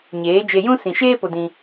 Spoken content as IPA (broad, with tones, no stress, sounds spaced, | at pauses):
ɲ eː˨˦ d͡ʒ e˧ j ũ˦ s ĩ˨ ʃ eː˦ p o˧ d ĩ˧